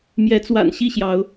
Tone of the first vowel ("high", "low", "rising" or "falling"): rising